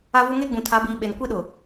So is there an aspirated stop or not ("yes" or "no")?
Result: yes